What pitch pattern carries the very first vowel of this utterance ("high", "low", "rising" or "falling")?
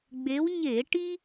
rising